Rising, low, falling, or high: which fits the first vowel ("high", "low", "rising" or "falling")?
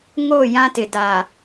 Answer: falling